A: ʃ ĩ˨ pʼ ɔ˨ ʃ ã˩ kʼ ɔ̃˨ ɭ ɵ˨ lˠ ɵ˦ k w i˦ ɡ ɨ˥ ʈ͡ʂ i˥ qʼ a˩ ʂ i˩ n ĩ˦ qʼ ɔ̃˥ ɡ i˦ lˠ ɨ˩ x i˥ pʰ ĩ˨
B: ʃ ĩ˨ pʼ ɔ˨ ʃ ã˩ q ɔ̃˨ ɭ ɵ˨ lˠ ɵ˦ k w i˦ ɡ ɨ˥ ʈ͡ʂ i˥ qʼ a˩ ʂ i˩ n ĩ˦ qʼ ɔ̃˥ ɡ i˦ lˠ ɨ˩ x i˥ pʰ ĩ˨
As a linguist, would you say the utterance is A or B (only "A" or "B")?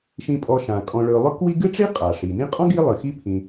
A